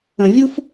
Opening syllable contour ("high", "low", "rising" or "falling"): low